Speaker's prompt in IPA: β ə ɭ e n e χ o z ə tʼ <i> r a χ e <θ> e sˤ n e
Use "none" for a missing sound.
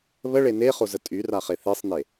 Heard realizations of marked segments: y, θ

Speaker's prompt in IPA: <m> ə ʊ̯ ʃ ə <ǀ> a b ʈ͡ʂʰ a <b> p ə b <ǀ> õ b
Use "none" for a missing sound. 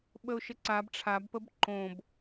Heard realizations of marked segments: ɓ, ǀ, b, ǃ

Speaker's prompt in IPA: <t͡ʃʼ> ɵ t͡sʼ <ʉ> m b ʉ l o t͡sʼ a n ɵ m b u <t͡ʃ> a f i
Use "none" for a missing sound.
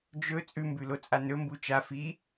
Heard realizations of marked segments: d͡ʒ, ʉ, t͡ʃ

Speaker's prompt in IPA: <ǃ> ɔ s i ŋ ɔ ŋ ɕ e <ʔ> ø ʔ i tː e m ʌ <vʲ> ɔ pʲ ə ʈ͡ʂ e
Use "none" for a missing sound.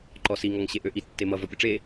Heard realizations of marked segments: ǃ, ʔ, v

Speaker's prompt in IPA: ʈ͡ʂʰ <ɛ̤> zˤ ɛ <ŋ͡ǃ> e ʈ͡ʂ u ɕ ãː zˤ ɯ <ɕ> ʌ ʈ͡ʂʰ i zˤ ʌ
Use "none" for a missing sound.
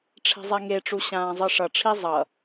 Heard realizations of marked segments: ɛ̤, ŋ, ʂ

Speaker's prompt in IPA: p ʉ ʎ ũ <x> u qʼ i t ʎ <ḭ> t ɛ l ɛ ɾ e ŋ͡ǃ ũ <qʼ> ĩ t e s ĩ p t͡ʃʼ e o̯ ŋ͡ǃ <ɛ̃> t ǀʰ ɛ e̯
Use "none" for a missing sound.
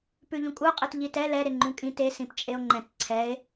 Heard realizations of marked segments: kʼ, i, kʼ, ɛ̃

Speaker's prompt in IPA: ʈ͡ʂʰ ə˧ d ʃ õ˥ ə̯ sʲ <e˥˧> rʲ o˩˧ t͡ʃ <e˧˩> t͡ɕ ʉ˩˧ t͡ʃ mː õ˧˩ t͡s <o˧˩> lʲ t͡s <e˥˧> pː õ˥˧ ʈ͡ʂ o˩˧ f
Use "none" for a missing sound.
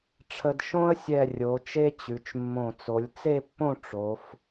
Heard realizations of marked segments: ɛ˥˧, e˥, o˩˧, e˥˧

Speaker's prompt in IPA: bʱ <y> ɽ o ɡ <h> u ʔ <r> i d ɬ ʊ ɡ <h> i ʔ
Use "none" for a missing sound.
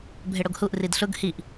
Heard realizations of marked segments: e, h, r, h

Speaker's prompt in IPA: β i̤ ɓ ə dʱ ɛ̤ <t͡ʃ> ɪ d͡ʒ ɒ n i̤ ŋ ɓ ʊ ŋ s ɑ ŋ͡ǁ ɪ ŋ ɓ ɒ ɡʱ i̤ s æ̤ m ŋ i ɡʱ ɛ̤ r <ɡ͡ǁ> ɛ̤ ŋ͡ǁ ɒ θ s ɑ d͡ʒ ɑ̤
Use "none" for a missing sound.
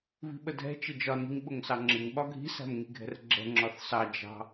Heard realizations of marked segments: t͡ʃ, ɡ͡ǁ

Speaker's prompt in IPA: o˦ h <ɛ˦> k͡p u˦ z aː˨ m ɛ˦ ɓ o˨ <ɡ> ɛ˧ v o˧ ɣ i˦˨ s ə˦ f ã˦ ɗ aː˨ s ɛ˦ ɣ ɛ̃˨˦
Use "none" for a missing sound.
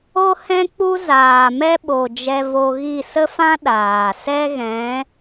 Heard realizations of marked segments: ɛ̃˦, d͡ʒ

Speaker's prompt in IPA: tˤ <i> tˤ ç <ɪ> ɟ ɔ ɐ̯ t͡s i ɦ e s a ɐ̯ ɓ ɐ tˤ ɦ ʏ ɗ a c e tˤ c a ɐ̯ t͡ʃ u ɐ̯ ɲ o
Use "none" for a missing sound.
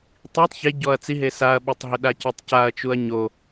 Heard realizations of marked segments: i, ɪ

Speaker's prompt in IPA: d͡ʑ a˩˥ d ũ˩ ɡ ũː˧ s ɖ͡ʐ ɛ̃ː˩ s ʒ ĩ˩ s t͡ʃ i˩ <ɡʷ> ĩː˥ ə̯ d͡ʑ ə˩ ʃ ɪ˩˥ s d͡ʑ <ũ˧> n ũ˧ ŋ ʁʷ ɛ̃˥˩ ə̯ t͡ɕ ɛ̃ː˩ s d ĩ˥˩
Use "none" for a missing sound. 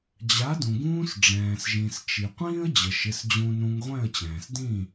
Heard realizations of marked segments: qʷ, ũ˧

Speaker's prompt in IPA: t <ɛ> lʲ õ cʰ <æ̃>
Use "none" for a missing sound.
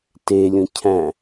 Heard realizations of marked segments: e, æ̃

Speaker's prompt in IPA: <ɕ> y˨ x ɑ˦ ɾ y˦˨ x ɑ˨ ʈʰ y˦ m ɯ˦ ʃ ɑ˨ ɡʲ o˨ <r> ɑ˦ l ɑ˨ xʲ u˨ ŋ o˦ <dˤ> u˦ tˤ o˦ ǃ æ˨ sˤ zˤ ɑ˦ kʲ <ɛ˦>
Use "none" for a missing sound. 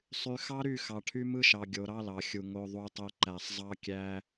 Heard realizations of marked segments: sˤ, ɾ, ðˤ, æ˦

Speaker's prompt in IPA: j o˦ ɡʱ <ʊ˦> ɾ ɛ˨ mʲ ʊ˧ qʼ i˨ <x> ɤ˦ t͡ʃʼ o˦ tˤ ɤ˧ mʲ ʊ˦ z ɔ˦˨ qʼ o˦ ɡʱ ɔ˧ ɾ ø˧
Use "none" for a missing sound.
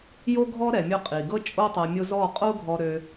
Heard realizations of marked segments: ɔ˦, ɡ

